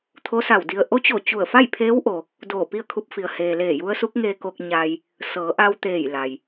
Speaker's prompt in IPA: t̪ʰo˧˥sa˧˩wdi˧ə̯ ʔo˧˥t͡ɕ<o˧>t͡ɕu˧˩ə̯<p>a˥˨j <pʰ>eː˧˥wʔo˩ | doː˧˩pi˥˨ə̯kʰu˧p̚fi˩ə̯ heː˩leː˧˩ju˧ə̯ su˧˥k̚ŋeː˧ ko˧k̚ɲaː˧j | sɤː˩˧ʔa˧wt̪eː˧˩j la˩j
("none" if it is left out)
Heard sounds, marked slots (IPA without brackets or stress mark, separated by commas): o˧˩, f, pʰ